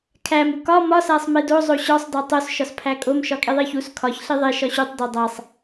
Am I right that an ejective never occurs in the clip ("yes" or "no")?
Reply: no